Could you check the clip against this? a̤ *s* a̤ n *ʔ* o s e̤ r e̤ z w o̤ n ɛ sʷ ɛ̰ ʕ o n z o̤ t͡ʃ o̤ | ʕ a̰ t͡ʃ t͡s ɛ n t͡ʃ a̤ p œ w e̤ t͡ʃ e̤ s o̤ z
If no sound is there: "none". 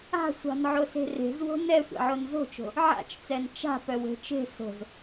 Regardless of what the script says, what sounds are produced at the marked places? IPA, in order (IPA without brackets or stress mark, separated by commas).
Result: sʷ, ʕ